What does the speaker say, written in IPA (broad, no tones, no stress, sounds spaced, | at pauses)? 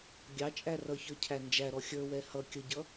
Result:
ɡʲ ɑ t͡ʃʼ æ r ʌ ç ə˞ cʰ æ n d͡ʒ æ ɾ ɔ xʲ ə˞ w ɛ h ʌ kʲ ə ɟ ʌ